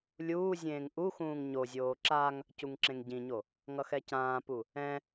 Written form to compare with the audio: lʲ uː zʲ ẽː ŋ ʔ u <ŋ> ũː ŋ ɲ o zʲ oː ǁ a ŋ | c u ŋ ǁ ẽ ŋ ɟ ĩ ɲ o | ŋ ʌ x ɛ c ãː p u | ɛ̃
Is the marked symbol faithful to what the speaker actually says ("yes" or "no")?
no